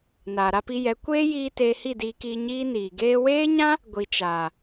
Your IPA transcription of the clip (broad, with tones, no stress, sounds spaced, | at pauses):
n aː˨ ɾ a˧ p i˧ j ɛ˨˦ kʷ eː˦ j iː˧ t eː˧ h i˦˨ d iː˧ k iː˧ ɲ iː˦ n iː˨ ɡ eː˧ w eː˦ ɲ ã˦ | ɡʷ i˨ t͡ʃ aː˨